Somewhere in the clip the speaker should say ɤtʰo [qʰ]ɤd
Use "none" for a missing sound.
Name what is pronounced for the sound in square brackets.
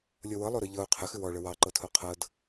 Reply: qʰ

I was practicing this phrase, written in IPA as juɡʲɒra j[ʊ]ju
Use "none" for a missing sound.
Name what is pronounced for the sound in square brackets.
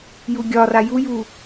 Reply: u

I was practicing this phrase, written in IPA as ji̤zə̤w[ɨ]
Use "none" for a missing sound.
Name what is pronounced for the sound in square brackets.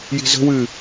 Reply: ɨ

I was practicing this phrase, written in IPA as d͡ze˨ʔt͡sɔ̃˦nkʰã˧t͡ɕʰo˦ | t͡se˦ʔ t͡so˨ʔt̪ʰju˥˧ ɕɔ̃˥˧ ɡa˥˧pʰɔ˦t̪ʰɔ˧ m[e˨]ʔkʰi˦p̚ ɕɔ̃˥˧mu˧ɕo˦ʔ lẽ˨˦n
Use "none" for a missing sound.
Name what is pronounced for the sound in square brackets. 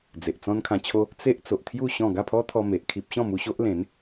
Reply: e˨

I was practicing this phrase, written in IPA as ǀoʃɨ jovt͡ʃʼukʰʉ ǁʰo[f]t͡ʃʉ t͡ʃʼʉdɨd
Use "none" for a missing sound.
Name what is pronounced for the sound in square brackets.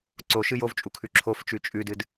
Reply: f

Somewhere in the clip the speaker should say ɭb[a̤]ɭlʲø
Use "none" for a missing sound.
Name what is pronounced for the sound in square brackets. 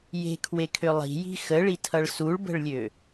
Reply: ə̤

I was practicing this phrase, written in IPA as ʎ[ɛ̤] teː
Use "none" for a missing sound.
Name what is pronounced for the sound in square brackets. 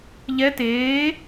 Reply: ɛ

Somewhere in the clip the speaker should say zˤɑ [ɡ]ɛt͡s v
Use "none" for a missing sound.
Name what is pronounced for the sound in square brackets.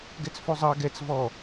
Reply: ɡ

